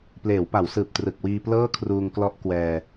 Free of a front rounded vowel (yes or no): yes